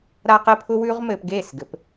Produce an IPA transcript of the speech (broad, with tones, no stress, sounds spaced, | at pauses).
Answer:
ɾ a˧ q ɘ˧ pʰ ʊ˧ w ʉ˧ ʁ m ɘː˧ p ɡ eː˦˨ s ɡ ɘ˨˦ p